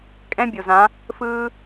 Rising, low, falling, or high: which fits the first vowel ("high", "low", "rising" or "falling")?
high